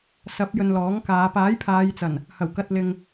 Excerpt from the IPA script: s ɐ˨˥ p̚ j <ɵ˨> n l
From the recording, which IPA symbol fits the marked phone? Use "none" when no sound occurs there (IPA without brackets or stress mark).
ɵ˧